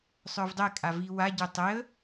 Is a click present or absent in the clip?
absent